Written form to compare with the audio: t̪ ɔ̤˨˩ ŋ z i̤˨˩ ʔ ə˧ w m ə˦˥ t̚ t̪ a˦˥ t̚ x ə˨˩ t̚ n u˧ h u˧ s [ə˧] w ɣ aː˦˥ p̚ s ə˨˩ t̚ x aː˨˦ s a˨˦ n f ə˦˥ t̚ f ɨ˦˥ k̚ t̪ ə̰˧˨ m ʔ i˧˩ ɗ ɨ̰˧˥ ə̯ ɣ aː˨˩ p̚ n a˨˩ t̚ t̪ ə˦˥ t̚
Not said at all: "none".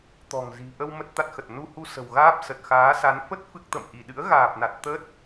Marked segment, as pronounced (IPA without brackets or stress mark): ə̤˨˩